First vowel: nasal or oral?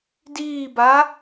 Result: oral